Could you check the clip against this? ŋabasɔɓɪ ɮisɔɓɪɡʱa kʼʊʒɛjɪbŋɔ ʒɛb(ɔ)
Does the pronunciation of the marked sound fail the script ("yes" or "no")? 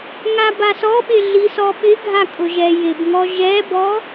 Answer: no